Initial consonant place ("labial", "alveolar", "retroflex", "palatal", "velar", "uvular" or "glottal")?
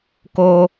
velar